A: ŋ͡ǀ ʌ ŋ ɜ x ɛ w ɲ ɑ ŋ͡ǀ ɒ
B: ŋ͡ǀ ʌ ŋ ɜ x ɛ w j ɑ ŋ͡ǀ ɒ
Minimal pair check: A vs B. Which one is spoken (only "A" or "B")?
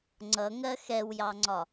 B